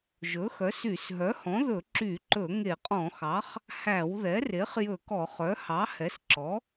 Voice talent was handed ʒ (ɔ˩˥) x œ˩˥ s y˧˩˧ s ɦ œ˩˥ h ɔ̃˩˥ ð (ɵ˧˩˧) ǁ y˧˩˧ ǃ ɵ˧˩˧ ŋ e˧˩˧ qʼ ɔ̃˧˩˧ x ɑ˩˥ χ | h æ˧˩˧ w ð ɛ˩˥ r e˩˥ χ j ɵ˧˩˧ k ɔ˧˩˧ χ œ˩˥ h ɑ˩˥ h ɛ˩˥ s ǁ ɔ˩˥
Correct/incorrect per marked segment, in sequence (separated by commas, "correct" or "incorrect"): incorrect, correct